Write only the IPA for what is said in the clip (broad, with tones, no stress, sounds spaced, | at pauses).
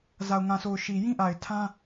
z a˨ ʊ̯ ŋ ã˨ s o˨ ʊ̯ ʃ i˨ j ĩ˦ ʔ a˨ ɪ̯ tʰ ã˦